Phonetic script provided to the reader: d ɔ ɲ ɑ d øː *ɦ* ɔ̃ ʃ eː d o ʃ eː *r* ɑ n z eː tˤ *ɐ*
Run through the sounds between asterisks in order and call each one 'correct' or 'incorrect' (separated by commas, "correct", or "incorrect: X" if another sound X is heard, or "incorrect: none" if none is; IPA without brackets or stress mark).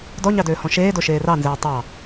incorrect: h, correct, incorrect: ɑ